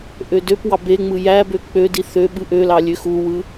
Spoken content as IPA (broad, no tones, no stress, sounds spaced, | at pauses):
ʔ ø d ø p w ɑ b e ŋ͡m ɯ j æ b ø k͡p ø d i θ ø ɓ ɯ ʔ ø l ɑ lʲ ø x u w ɯ